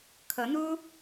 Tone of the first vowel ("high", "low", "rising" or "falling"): rising